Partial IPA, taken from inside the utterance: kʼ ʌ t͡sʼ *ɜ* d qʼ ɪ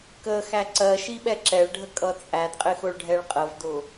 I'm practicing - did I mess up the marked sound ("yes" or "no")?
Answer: yes